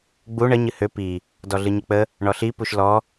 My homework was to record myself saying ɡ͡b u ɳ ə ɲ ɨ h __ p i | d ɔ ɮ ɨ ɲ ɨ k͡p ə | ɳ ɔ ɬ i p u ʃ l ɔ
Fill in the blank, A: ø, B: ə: A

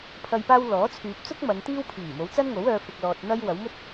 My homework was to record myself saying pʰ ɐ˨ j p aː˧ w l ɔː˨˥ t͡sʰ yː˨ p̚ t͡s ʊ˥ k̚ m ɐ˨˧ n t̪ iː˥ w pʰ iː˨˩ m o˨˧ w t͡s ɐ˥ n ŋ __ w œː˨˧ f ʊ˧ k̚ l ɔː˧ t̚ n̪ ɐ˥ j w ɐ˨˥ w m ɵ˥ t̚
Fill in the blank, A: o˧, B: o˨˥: B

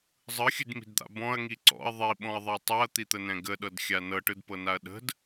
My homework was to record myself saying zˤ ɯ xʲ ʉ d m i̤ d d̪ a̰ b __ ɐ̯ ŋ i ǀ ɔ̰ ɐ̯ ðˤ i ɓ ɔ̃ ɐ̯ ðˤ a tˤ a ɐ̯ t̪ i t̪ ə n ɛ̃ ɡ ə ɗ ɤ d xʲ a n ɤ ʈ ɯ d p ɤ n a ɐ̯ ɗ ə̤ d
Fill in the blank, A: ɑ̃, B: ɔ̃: B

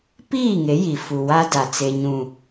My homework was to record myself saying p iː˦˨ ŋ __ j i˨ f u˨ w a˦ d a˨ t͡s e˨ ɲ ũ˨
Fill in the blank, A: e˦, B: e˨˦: B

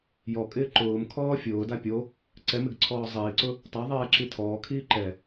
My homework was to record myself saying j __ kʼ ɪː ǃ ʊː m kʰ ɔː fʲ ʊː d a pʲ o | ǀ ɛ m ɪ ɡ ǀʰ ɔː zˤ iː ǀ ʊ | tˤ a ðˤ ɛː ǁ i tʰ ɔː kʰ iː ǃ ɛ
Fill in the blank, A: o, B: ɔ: B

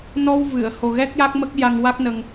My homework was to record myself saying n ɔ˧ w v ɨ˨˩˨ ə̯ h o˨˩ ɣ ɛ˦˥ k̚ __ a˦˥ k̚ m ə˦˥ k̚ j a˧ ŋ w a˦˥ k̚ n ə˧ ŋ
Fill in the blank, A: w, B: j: B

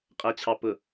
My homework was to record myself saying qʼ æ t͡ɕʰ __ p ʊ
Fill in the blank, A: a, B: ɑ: B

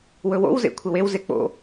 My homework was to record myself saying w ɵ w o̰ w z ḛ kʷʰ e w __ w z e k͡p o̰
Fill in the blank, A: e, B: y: A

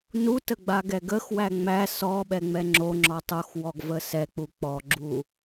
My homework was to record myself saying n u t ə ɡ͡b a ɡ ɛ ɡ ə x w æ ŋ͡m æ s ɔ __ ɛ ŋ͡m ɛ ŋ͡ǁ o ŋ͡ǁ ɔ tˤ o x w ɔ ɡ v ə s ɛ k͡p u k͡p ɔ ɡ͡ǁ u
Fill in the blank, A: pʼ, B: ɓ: B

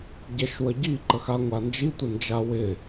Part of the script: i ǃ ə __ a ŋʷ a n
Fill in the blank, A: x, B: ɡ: A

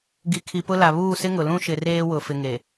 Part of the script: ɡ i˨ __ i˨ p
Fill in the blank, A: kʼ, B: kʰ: B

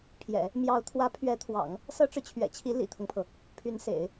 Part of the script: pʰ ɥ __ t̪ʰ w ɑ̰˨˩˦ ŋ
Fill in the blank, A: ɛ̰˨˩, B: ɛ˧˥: B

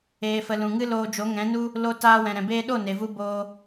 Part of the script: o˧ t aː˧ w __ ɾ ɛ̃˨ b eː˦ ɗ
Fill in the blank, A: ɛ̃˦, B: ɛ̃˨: B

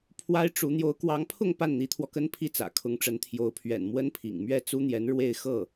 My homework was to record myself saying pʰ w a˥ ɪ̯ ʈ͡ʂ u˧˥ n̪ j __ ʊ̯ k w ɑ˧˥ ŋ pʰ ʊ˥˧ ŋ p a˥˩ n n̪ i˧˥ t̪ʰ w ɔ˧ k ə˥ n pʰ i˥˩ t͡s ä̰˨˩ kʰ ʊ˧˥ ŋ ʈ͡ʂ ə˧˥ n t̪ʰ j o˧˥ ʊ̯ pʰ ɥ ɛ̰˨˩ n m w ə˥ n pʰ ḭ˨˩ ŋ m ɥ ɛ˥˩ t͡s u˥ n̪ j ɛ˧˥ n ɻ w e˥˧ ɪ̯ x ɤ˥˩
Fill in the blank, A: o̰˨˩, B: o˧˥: B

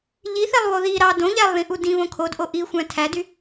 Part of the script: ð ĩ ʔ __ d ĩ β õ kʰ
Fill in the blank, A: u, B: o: A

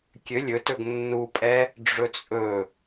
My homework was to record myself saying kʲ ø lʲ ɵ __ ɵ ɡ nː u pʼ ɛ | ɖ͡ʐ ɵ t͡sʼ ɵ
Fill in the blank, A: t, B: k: A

